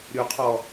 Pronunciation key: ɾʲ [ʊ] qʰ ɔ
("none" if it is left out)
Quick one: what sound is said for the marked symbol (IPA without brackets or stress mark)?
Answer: u